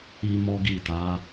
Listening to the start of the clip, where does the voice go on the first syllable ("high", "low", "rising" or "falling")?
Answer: high